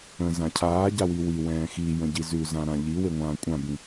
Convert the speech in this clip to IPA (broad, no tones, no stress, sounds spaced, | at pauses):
ə̃ z ã cʰ aː ɟ a w i w i w ɛ̃ː x i j ə̃ ɟ i z ʉ z ã ɾ ã ʎ i w e ŋʷ ãː kʷʼ ã b ĩ